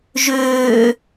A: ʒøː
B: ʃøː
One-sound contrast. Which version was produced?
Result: A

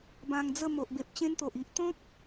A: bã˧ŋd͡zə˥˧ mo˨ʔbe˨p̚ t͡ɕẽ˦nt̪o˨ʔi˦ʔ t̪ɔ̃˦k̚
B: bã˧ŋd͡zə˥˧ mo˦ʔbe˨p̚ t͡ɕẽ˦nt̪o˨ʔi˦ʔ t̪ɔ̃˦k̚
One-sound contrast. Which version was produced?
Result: A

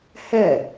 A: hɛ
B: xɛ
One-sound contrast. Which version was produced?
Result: A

